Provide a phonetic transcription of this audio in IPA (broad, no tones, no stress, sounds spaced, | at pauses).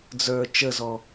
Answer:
d͡z ə˞ t͡ʃ ə z ɔ